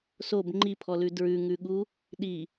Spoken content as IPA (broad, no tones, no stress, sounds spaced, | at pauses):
s o b ŋ͡ǃ i pʰ ɔ l ʉ d ɹ ʉ ŋ ʉ ɠ u | ɗ i